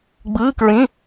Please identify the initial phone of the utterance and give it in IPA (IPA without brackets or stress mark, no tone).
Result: ɡ͡b